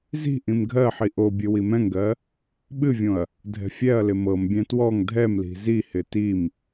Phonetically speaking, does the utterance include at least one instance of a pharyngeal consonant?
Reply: yes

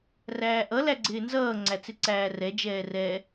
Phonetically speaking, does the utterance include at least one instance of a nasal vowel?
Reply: no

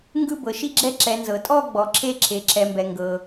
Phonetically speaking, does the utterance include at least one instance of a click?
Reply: yes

